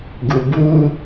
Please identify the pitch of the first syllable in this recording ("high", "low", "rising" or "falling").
low